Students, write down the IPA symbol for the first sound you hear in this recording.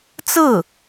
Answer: t͡s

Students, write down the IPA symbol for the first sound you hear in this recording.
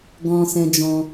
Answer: ɡ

